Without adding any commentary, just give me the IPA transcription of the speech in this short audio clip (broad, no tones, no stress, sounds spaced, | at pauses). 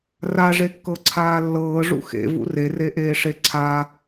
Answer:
r a ʐ e kː ɤ ǀʰ aː lː ɤː ʐ ṵ x ḛ v ṵ r e r e ʔ eː ʂ e ǀʰ a